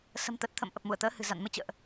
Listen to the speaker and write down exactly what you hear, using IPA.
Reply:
s ə̤˨˩ m t̪ ə˨˩ t̚ t̪ʰ ə̰˧˨ m ʔ ə˨˩ p̚ m u˧˩ ə̯ t̪ əː˨˦ h ɨ̤˨˩ z a̰˧˨ n m ɨ˧ t͡ɕ ə̰ː˧˨ ʔ

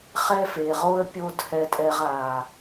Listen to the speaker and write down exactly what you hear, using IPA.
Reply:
χ ɛ˦ f e˨ ʁ o˦ ə̯ pʲ o˦ d h ɛ˧ tʼ ɛ˧ ʁ a˨

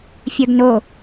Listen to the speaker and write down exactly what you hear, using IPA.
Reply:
fʲ œ ɡ n o

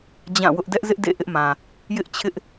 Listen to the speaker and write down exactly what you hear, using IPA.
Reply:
d͡ʑ ã˦˨ w ʊ˦ ʔ d ɛ˦ ʔ z ɪ˦ ʔ d ḛ˦˨ ʔ ɪ˦ ʔ m ã˨ | j ɪ˦ ʔ t͡ɕʰ ɪ˦ ʔ

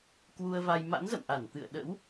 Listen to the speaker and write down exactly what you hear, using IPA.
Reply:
k w u˧ ə̯ v a˧ j m a̰˧˥ n z ə̰˧˨ m ʔ a˧˩ n t̪ ɨ̰˧˨ ə̯ ɗ ə̰˧˥ w

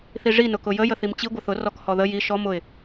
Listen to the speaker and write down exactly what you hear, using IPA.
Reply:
θ i ʐ i n ʊ k ʊ j ə j ə θ i m t͡ɕ i ɡʷ ə θ ʊ r ɔ k h ɔ ð ə j i ʃ ɔ m ʊ ɪ̯

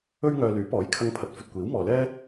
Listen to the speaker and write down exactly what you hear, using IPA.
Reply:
ɵ˥ ɥ ŋ œː˧ l yː˨˥ p ɔː˨˥ j kʰ ɐ˧ ŋ pʰ ɐ˨˥ t̚ f ɵ˨ t̚ kʷ iː˨˥ w m ɔː˨ l ɛː˥

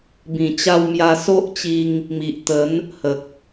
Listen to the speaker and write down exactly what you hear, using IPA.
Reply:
b ĩ˨˩ t͡ɕ a˧ w m j a˧ s o˦ ʔ t͡ɕ i˧ ŋ | m i˨ ʔ t̪ ə˨˦ n | h ə˨ k̚

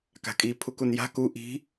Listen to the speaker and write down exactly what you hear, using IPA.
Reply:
k a̤ kʼ i pʰ u k u n j a̤ k u ʔ i̤

